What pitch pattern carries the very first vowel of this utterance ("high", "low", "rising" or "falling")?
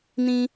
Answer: high